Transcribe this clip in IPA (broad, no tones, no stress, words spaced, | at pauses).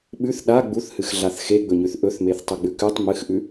ɓʉθ ɗa ɡ͡buθhɨxɮaθ xeɡ͡bɵɲʉθ ʔɵθmeθtˤɵɡ͡bʉ kʉtˤ mɨxʔʉ